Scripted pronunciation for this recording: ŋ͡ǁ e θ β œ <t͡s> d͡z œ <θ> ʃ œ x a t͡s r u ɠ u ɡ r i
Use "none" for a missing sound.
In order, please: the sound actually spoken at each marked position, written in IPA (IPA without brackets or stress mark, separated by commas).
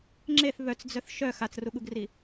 t͡s, θ